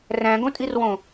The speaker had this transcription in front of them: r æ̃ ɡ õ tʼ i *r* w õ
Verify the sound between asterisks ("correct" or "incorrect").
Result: correct